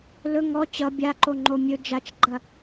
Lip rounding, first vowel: rounded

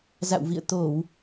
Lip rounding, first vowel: unrounded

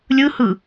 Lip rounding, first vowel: unrounded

